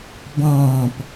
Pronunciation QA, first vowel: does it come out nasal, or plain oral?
nasal